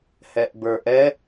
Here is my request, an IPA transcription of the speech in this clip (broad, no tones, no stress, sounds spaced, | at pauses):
h ɛ ʔ b ə˞ ʔ ɛ